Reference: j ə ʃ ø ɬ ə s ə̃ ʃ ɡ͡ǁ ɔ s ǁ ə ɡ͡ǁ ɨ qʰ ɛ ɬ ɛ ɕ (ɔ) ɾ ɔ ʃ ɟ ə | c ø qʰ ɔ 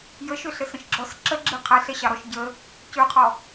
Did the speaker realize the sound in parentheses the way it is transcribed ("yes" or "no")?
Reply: no